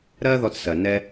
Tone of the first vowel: high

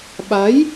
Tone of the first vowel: rising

